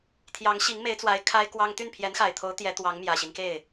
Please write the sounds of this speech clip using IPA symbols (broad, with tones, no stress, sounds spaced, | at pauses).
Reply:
t̪ʰ j ɑ˧˥ ŋ ɕ i˧˥ ŋ m e˧˥ ɪ̯ t͡s w a˧˥ ɪ̯ kʰ a˥ ɪ̯ k w ɑ˥ ŋ t̪ y˥˩ n pʰ j ɛ˧˥ n x a˨˩ ɪ̯ t̪ʰ o˧˥ ʊ̯ t̪ j ɛ˧˥ t̪ w ɑ˧˥ ŋ m j ä˨˩ ɕ i˦ n k e˥˩ ɪ̯